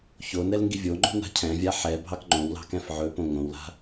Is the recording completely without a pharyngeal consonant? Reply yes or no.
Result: no